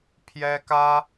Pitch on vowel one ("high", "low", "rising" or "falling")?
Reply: high